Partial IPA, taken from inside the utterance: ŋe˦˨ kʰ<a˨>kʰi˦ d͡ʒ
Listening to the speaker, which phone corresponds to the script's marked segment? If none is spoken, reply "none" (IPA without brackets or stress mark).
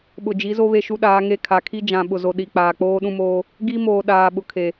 a˨